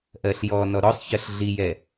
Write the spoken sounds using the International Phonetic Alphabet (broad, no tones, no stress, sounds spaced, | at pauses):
ʔ ɜ ɬ j ɔ n ɔ ɾ ɔ sˤ ç ɜ ɬ ɮ i j ɛ